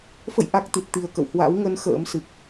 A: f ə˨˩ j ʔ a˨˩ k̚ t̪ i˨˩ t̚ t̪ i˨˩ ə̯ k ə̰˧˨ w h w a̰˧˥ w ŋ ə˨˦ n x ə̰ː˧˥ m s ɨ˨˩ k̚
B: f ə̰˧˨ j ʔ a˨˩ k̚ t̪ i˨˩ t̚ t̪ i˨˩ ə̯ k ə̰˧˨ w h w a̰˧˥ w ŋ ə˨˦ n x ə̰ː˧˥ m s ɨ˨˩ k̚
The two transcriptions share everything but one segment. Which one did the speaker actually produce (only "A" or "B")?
B